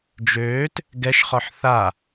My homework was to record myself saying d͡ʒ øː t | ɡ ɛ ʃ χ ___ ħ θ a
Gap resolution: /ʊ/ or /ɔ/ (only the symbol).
ɔ